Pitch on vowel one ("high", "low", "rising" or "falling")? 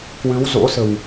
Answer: rising